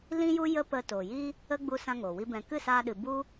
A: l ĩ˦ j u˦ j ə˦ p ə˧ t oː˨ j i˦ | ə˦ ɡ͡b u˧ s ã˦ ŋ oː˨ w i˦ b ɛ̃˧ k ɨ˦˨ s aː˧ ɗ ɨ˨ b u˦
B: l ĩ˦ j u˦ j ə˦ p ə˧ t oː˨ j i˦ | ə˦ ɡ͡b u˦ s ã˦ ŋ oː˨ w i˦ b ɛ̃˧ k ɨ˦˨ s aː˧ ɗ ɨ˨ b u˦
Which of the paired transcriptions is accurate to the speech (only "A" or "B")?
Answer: B